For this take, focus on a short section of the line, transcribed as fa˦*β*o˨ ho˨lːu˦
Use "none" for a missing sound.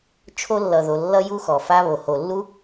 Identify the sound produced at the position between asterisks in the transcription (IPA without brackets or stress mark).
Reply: β